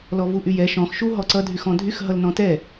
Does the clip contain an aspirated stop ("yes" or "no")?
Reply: no